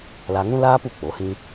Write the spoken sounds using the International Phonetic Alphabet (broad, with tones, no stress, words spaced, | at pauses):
la˧ŋũ˦laː˦p u˧ k͡po˨˦hĩ˦